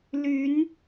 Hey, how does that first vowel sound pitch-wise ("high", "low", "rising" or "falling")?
rising